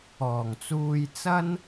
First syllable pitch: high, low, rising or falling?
low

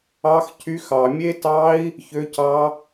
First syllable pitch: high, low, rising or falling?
high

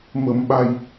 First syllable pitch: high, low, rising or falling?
low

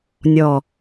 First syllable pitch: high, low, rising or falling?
falling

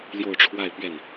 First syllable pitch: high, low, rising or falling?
falling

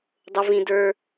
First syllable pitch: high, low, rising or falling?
high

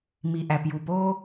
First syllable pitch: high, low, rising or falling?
low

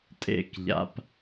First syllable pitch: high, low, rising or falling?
falling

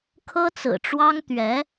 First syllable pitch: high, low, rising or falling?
high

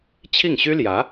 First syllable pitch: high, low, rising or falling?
falling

